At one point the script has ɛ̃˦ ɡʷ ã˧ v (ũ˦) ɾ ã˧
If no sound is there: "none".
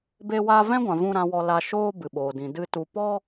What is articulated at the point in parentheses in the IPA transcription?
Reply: ũ˦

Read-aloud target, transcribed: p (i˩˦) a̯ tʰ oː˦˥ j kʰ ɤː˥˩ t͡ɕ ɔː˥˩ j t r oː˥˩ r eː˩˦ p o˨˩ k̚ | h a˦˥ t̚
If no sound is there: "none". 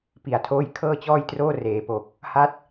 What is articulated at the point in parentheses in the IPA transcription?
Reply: i˩˦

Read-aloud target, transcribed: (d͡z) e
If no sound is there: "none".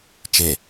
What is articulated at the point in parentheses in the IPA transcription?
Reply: t͡ʃ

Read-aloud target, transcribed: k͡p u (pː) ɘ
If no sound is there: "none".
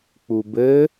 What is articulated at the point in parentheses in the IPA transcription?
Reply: b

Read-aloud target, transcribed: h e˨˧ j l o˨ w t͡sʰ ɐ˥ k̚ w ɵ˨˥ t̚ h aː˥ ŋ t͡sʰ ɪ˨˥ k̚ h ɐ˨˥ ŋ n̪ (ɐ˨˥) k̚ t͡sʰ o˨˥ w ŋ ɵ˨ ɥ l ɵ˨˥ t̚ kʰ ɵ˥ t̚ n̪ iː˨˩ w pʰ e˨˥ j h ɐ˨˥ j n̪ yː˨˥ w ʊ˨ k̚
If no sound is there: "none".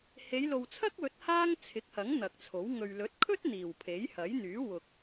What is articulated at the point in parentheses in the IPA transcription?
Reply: ɐ˨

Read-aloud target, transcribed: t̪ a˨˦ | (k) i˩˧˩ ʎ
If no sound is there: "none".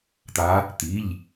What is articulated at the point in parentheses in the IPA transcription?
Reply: t̪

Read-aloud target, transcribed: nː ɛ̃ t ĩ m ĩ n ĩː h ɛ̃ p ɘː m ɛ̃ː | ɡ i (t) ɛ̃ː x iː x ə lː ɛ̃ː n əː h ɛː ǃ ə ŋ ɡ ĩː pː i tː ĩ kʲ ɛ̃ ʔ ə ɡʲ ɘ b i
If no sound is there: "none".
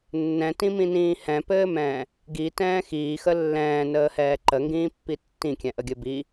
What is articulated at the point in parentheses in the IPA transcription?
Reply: t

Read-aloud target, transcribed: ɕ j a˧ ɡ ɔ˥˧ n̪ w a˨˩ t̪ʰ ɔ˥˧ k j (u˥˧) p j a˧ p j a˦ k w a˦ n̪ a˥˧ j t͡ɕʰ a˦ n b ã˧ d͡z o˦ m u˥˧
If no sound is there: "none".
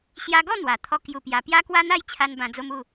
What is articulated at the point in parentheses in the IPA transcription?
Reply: u˥˧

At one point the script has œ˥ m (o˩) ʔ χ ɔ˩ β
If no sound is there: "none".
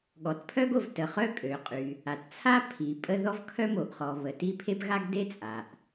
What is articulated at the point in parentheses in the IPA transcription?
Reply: o˩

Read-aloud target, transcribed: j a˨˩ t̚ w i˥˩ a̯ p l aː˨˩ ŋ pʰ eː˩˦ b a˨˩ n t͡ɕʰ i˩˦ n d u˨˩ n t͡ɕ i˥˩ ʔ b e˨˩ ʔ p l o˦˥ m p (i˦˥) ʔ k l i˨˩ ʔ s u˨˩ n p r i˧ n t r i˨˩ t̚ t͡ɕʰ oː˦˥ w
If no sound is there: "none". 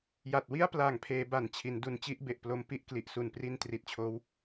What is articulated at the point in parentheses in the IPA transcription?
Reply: i˦˥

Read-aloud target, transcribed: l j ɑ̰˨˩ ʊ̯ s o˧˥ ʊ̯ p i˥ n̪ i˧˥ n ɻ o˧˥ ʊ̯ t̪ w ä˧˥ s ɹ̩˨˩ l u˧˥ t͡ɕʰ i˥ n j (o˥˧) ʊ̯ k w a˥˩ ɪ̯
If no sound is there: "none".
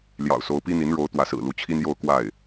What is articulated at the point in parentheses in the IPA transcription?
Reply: o˥˧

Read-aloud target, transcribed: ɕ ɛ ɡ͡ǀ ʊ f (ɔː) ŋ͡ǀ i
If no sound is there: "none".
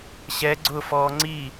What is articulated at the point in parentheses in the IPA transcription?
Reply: ɔː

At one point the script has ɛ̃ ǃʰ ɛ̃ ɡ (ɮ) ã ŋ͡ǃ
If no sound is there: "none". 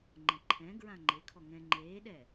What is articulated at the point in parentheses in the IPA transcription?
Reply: ɹ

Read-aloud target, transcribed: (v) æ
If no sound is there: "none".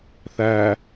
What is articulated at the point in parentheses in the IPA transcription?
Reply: θ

